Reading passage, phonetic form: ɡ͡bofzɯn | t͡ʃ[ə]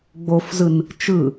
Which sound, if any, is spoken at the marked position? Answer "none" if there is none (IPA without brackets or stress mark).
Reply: ɯ